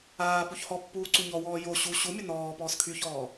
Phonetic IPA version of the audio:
aː p u ç h ɔ pː uː ǀ u ɲ ɔ w ɔː j o ɕ u ɕ u mʲ ə n ɔː p ɔː s kʰ y ç ɔː

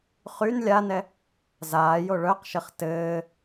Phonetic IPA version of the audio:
χ y n lʲ a n ɛ | z aː j o ɭ œ q ʃ ɘ χ t ɘː

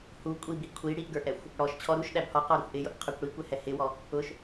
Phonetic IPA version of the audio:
h u kʷʼ i b i kʷʰ i ɽ i ʔ ɡ ə˞ ʔ ɛ xʷ | ɽ ɔ ʃ t͡ɕʰ ɔ ɾ u ʃ ɗ æ b h ɔ q ɔ ɾ ə xʷ ʔ ɪ j ʊ ʔ qʰ ə˞ kʷ ɽ i kʷ ɛ h ɛ h ɪ w ɔ | ʊ ʃ

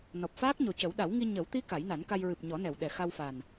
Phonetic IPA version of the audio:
n ɔ˨˩ p̚ f aː˦˥ k̚ ɲ o˨˩ c ə˨˩˦ w ɗ a˨˩˦ w ŋ i˧ ɲ ə˨˩˦ w t̪ i˧˥ k a˨˩˦ j n a˨˩˦ n k a˧ j ɹ ɨ˨˩ p̚ ɲ ɔ˨˩˦ n ɛ˨˩˨ w ɗ ɛ˨˩ x a˧ w f a˨˩ n

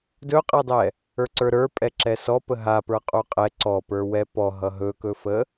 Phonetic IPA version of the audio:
d ɵ qʼ ɛ dˤ ɛ | ə˞ ǀ ə˞ ɾ ə˞ pʼ ɛ ǁ ɛ s ɔ p ə ɦ a p ə˞ qʼ u qʼ ɛ ǀ ɔ p ə˞ w ɛ p ɔ ɦ ʌ ɦ ɵ k ɵ f ə

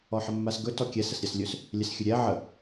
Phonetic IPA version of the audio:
ɔ ħ ə mː a s ɡ ɵ t ɔ kʲ ɛ s ə s ɾʲ a s lʲ ɵ s | lʲ ɛ s xʲ ɵ ɾʲ ɛ ʕ ə

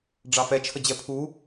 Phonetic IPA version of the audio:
ɖ͡ʐ ɑ f ɛ t͡ʃʰ ə d͡ʑ ɛ pʰ u

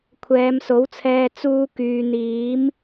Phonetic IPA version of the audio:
kʷʰ ɛː˨˧ m s o˨˥ w t͡sʰ ɛː˧ t͡s uː˥ k yː˧ n̪ iː˨˥ m

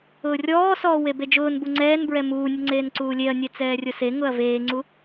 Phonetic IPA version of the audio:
ʊː rʲ ɔː s ɔː w e b e d͡ʒ ʊː n b u ŋ͡ǀ ɛː n b ɹ ɛ m uː nʲ ʊ ŋ͡ǀ eː n ǀ uː lʲ e ɐ̯ nʲ e t͡s ɛː rʲ ʊ s e ŋ ʊ ɐ̯ v eː ŋ͡ǀ u

